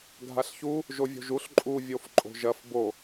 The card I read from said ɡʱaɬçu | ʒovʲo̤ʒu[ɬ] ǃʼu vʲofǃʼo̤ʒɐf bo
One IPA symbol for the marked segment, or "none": ɬ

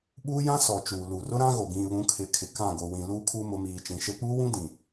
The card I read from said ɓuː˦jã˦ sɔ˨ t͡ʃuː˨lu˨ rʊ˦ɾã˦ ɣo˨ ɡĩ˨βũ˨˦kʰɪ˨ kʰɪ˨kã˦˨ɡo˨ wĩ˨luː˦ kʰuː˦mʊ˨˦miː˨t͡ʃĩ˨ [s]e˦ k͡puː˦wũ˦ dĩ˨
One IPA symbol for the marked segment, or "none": ʃ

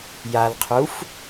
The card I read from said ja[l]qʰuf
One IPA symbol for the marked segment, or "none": l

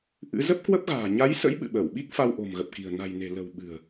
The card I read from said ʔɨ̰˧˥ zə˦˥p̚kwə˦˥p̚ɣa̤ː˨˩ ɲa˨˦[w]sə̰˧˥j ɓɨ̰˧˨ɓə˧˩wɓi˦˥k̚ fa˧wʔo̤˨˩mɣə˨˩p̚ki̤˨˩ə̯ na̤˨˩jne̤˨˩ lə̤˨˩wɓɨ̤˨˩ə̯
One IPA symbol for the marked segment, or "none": j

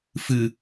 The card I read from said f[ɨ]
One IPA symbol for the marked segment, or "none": ɨ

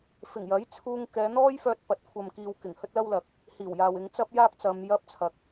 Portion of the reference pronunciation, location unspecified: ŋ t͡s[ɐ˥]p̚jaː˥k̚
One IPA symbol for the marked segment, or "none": ɐ˥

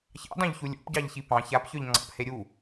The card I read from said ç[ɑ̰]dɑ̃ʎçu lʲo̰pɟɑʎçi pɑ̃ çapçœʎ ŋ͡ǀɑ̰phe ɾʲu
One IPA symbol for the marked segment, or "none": ɑ̰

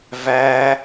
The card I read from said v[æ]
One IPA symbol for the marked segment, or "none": æ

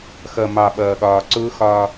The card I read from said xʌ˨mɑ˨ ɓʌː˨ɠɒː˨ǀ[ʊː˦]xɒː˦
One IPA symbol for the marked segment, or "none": ʊː˦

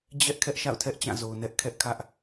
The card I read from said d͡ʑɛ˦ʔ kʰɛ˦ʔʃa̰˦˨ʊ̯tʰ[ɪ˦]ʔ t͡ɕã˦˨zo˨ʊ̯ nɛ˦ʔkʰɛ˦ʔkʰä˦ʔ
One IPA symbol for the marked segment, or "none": ɛ˦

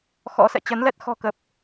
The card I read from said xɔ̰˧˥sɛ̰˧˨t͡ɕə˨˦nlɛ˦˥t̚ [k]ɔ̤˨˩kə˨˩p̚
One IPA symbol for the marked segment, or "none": x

